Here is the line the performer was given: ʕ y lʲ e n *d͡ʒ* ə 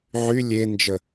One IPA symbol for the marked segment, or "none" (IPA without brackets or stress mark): d͡ʒ